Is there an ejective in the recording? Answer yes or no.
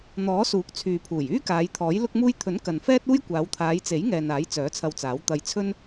no